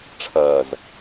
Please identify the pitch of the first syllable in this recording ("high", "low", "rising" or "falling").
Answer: low